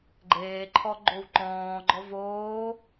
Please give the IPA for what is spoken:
ɡ͡ǃ eː ǃʰ ɔ ɡ͡ǃ o w ǃ ɔ̃ː ɡ͡ǃ ɔ v oː

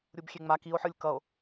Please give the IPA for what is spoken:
ɾʲ u b xʲ e ŋ͡m a k i o̯ ħ ɯ lʲ k ʌ o̯

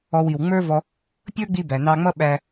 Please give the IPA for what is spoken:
ɔ˧ w i˨ w ŋ͡m ə˞˦ v ɔ˧ | pʲ ə˞˦ ɡ͡b i˧ b æ˨ n ɑ˧ ŋ͡m ʌ˦ ɓ æ˧

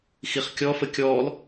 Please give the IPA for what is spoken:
x i χ kʲ ɔ f ə kʲ ɔː l

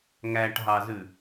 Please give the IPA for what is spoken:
ŋ æ ʈ ɦ ɑ z ʉ

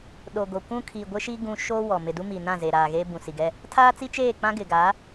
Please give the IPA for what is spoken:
ɗ o˨ ɡ o˨ kʷ ũ˦ kʰ i˨ ɡʷ ɪ˦ ʃ i˦ ɡ ũ˦ ʃ o˦ w ɔ˨ m ɪ˨ d u˦ m iː˨ n ã˦˨ z e˨ ɾ aː˨ ɣ eː˦ b ũ˨ s i˨ ɡ ɛ˦ | tʰ aː˦ t͡s i˦ t͡ʃ eː˦˨ k͡p ã˦ ɡ ɪ˨ ɡ a˨˦

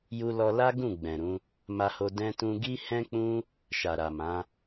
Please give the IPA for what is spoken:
j u˧ l ɔ˧ l a˦ ɡ ũ˦˨ ɡ͡b ɛ̃˨ ɾ ũ˨˦ | m a˧ h o˧ d ɛ̃˧ t ũ˧ ɡ i˦ h ɛ̃˦ k͡p ũ˦ | ʃ a˨ ɾ a˨ m ã˨˦

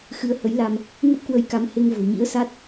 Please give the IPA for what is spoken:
x ɨ˨˦ ə̯ h ə˨˦ j l a˧ m | ŋ ə˦˥ p̚ k w ə˧ j k a˨˦ m h e˧ ŋ v o̤˨˩ ɲ ḭ˧˥ ə̯ s a˦˥ t̚

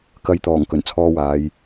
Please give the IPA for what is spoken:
k ɐ˨˧ j t̪ ɔː˨˩ ŋ k ɵ˨˩ n t͡sʰ ɔː˧ w aː˨˧ j

